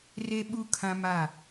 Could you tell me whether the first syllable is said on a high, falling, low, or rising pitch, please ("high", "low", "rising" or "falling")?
high